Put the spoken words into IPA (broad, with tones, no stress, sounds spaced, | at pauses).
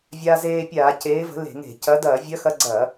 vʲ aː˧ z eː˧ pʲ aː˧˩˧ c eː˨˥ v ə̤˨˥ l e̤˧˩˧ ŋ e̤˧˩˧ c ɐ˨˥ d ɐː˧˩˧ vʲ ɐ˨˥ x ɐ˧ ɡ͡ǀ ɐː˧˩˧